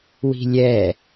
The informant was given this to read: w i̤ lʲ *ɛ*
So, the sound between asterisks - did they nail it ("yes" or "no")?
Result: yes